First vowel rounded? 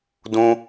yes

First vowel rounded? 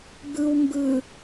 no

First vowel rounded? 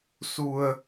yes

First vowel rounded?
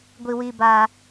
no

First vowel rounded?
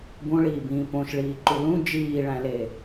yes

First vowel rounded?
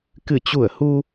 no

